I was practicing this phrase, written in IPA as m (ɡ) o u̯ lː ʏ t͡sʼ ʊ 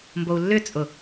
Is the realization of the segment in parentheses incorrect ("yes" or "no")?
yes